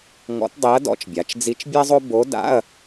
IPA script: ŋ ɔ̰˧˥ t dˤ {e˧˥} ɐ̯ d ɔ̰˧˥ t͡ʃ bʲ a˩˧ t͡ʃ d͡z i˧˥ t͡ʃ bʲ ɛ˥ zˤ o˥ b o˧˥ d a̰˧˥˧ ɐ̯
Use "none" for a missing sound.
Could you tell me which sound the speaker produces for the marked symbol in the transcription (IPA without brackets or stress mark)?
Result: e˧˥